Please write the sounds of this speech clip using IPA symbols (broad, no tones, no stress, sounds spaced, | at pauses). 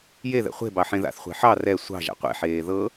j e ð ɛ̰ χʷ e̤ b ɑ ħ ẽ ð a̰ θ χʷ e̤ ħ ɑ r ɛ sʷ ɑ̤ ʒ a̰ qʷ ḛ ħ eː ð ɤ